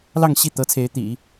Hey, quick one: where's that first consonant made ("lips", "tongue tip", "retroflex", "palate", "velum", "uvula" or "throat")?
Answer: tongue tip